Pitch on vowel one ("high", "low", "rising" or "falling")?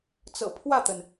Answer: low